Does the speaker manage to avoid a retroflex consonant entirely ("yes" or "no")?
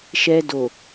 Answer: yes